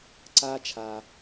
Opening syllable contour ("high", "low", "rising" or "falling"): high